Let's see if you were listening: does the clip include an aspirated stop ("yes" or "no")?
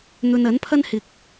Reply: yes